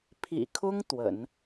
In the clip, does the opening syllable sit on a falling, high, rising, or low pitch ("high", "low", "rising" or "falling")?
low